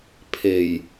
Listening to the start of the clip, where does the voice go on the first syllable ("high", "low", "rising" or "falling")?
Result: low